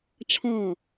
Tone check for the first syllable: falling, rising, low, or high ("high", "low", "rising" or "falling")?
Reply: falling